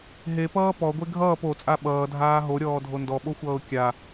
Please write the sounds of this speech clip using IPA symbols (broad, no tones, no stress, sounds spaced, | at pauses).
ɦ e p ʌː p ɔ ɡʷ e ɡʱ ʌː p o t͡sʼ a ɓ ʌː dʱ aː ɦ o ɾʲ ɔː dʱ o n d ɔ ɓ o xʷ ʌː ʊ̯ kʲ a